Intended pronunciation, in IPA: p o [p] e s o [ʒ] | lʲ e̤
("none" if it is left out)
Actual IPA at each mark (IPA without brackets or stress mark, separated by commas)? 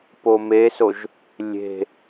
m, ʒ